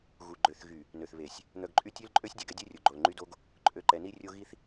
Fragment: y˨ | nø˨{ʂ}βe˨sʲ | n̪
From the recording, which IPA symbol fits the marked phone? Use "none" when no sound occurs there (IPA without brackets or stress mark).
θ